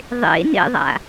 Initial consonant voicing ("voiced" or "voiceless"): voiced